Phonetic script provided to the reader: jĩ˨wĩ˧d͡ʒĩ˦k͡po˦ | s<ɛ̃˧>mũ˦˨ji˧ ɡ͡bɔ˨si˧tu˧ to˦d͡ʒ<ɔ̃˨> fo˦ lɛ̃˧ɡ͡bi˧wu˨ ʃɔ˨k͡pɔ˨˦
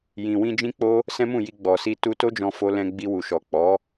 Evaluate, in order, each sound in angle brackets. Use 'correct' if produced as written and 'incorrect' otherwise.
incorrect, incorrect

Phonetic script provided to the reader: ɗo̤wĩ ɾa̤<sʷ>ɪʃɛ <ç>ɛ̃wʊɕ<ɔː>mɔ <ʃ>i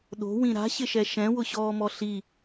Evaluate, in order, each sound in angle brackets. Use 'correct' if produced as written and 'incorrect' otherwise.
incorrect, incorrect, correct, incorrect

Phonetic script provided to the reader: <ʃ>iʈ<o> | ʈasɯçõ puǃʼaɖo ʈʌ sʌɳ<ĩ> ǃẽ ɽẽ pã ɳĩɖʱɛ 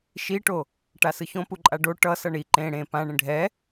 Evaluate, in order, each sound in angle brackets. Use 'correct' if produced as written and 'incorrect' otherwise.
correct, correct, incorrect

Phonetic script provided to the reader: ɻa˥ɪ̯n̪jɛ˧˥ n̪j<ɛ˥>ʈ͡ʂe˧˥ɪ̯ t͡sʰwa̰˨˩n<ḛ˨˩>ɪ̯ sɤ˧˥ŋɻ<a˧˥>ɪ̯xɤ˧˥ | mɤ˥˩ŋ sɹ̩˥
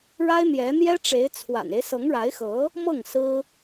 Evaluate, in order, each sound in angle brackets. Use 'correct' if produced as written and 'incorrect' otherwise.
correct, incorrect, correct

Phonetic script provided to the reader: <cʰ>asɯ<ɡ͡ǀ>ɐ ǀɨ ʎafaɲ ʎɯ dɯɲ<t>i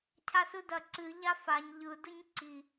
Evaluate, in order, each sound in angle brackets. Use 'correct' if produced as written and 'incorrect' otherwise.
correct, incorrect, incorrect

